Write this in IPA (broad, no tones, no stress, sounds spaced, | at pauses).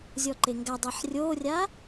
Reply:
zʲ ɔ ǃ e ŋ ɡ a dˤ e ħ rʲ oː rʲ a